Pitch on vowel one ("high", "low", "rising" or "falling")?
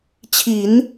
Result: low